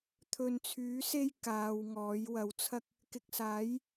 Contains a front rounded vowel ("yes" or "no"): yes